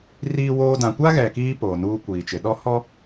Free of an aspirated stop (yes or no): yes